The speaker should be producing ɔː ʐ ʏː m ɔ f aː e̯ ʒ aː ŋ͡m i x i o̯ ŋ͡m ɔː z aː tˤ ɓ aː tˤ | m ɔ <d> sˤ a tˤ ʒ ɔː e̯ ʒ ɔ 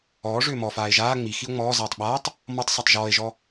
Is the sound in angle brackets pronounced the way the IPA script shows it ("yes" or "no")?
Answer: no